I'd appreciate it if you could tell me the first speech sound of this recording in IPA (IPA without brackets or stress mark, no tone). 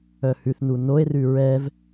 œ